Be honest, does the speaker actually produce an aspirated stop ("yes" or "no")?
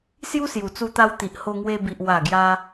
no